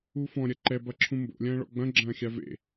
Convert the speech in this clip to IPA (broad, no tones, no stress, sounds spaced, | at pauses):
u f ɔ̃ ɾʲ ɐ ǃ ɛ b ɐ ǁʰ ũ m b o̰ lʲ ɐ̃ː ɭ ɔ̰ ɡ͡b ɐ̃ ɡ͡ǁ ɐ̃ː xʲ a v ḛ